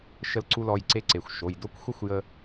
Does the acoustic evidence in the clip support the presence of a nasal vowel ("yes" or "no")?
no